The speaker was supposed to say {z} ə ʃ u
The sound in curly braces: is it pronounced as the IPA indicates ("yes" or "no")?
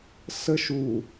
no